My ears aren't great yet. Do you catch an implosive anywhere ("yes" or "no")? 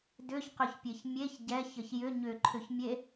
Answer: no